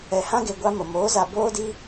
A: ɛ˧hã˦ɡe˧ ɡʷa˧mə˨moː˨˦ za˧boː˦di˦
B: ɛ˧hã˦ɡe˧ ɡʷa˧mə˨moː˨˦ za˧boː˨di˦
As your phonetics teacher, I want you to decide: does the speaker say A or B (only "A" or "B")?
A